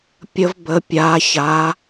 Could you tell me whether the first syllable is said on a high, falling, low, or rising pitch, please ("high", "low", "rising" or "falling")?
high